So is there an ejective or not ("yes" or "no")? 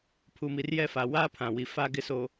no